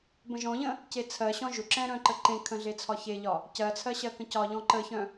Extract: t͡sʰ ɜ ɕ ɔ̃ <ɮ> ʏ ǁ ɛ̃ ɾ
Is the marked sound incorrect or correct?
incorrect